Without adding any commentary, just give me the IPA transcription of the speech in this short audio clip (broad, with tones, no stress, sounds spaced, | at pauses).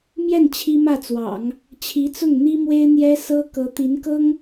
m j ɛ˥˩ n t͡ɕʰ i˥ m ä˥˩ t͡s w ɑ̰˨˩˦ ŋ | t͡ɕʰ i˧˥ t͡s ʊ˥˩ ŋ n̪ i˥ m w e˥ ɪ̯ n̪ j ɛ˥ s ɤ˥ k ɤ˧˥ t̪ i˧˥ n k ɤ˥ ŋ